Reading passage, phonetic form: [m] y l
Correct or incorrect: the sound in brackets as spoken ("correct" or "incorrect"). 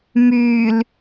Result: correct